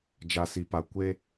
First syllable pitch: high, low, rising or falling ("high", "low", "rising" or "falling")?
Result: low